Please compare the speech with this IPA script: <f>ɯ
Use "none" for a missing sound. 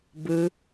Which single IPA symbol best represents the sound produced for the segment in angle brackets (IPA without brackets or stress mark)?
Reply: b